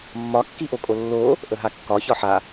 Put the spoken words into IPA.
mː ɒ kː i ʔ o kʼ o lː o | ʔ ə ɦ a kː ɒ ç ɒ ħ a

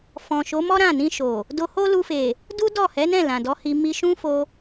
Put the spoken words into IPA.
f ɔ̃˨ ʃ o˨˦ m ɔ˦ ɾ ã˦˨ n ĩ˧ ʃ o˨ | d o˧ h o˦ l u˧ f e˨ | d u˦ d ɔ˦˨ h ɛ˨˦ n ɛ̃˦˨ l ã˨ d ɔ˨˦ h i˧ m i˧ ʃ ũ˦ f o˧

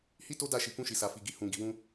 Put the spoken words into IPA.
h i˦ t o˦ d a˦˨ ʃ i˨ k ũ˧ ʃ i˨ s a˨ f i˨ ɡ i˨ h ũ˨ ɡ i˨ w ũ˧

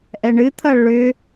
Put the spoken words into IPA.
ʔ ɛ ɳ ɨ t̪ʰ ʌ ɭ ʏ

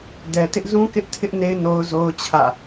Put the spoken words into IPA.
d ɛ˨ t ɪ˦ ʔ z ũ˦ k ɪ˦ ʔ tʰ ɪ˦ ʔ n e˦ ɪ̯ n o˦ ʊ̯ z o˦ ʊ̯ t͡ɕʰ ä̰˦˨

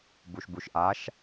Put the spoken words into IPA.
b u ʃ b u ʃ ʔ a ʃ

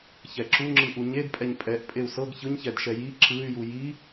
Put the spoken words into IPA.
ç ɛ ǁ u ŋ͡ǁ ɯ ʔ u ɲ e d pʼ ɛ ɲ pʼ ɛ ʔ pʼ e u̯ s ɤ ɡ ç ɯ ɲ ç ɛ d ʃ ɛ j i ǁ ɯ y̯ j u j i

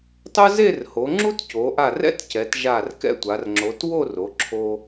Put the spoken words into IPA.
tˤ ʊ˥ z e˥˧ r h o˩˧ ŋ͡ǁ u˥ t c o˩˧ ʔ a˧˩ r ɛ̰˥ t c ɛ˩˧ t ʒ a˧˩ r k ɛ̰˥ tʷ a˩˧ r ŋ͡ǁ o˩˧ t w o˥˧ r o˩˧ ǁʰ o˧

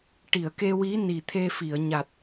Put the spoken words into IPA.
ʈ i˨˩˨ ə̯ k e˧ w i˧˥ n i˨˩ t̪ʰ e˧ f i˨˩˨ ə̯ ɲ a˨˩ t̚

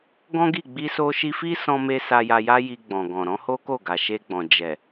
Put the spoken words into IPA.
ɡ ɔ̃˦ ɡ i˦˨ ɡ͡b i˧ s o˧ ʃ i˧ f i˦ s ɔ̃˧ m e˧ s a˧ j a˧ j a˦ j i˧ ɡ͡b ɔ̃˨ ɡ ɔ̃˨ ɾ ɔ̃˨˦ h o˦ k o˦˨ ɡ a˨ ʃ e˧ ɡ͡b ɔ̃˨ d͡ʒ ɛ˨

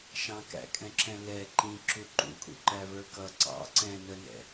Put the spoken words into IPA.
ʃ ɑ̃ k æ̰ kʼ ɛ̃ ǁ ɛ̃ l ɛ ǃ ĩ ǁ u ǃ ṵ kʼ ṵ ǃ æ v ə˞ k ʌ ǀ ɑ̰ ǀ ɛ̃ n ə n ɛ̰

